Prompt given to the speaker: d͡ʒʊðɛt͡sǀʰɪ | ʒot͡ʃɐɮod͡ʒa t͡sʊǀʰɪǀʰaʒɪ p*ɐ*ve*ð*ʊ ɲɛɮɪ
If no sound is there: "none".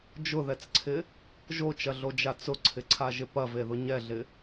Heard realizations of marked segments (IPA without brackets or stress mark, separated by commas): ɐ, ð